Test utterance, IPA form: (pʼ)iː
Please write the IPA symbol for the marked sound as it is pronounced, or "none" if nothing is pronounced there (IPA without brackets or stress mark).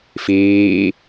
f